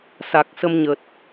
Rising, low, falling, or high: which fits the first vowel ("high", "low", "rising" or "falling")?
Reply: low